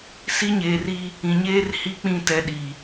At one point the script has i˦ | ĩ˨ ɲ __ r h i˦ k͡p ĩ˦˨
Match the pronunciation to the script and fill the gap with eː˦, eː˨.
eː˦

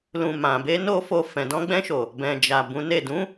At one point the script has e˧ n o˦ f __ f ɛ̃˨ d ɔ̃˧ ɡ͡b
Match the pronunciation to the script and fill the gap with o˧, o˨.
o˧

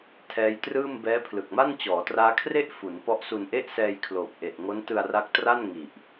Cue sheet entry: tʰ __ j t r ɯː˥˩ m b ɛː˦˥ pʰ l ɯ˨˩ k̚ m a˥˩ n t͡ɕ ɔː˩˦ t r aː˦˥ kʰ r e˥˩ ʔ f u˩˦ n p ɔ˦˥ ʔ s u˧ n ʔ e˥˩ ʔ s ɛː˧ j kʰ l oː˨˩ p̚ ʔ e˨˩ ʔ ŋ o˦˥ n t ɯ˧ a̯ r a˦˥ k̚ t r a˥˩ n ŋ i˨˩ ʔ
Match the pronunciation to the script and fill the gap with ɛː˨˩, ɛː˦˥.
ɛː˦˥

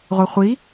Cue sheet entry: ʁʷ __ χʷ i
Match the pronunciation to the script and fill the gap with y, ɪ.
ɪ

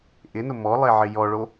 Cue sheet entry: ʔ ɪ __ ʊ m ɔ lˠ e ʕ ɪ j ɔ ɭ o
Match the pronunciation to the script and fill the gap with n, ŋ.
n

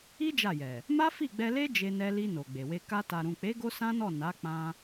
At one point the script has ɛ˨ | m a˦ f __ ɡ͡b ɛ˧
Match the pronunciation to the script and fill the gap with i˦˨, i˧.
i˦˨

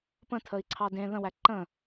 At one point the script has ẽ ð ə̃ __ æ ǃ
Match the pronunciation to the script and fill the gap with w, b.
w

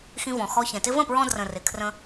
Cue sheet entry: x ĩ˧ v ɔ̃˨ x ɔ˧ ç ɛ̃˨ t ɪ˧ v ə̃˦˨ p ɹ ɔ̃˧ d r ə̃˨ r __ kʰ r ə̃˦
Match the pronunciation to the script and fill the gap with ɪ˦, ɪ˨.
ɪ˨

